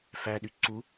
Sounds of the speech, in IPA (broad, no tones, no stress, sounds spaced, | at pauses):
f æ ɗ y ǀ u